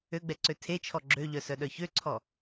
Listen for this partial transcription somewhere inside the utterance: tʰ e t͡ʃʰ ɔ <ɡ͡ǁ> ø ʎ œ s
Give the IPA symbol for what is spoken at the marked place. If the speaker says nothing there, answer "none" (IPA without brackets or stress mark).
ɡ͡ǁ